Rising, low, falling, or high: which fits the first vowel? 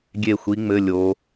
falling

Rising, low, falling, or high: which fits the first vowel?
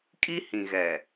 high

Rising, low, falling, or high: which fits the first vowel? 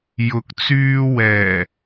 rising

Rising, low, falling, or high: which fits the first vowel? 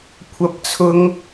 high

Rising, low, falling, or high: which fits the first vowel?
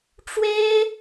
high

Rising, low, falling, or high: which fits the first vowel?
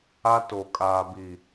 high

